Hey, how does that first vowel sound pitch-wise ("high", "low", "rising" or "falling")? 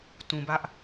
low